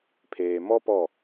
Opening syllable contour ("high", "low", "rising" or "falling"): low